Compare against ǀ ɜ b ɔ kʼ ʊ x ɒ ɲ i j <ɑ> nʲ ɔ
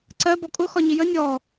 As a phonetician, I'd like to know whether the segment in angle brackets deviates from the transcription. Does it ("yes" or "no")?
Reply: yes